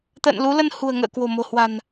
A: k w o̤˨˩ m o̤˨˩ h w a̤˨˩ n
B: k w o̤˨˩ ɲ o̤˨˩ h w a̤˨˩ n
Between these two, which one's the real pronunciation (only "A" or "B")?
A